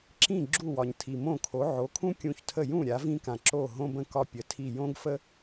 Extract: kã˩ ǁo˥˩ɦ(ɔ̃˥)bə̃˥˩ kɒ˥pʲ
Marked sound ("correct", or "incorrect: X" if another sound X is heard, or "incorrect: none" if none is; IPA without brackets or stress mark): incorrect: õ˥